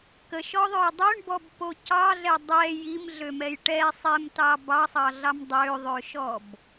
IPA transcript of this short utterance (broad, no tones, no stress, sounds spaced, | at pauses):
k ə ʃ ɔ ðˤ ø j dˤ ø ɳ b ɔ b p o c ɑ ɮ ɛ dˤ ɛ j i m ɮ ø m ɛ j ʈ ɛ sˤ ɛ m t ɑ b ɑ sˤ ɑ ɮ ɑ m dˤ ø ðˤ ø ʃ ɔ b